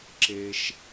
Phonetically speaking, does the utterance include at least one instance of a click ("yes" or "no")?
yes